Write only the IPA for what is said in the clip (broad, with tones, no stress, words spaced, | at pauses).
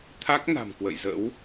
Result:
t̪ʰa˦˥k̚ na̤˨˩mkwə̰˧˨jzə̰˧˥w